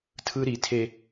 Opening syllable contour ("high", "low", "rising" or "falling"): high